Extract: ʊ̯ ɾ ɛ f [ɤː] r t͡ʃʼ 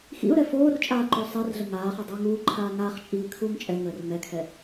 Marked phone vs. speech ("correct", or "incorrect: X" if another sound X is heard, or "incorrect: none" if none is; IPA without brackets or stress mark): incorrect: oː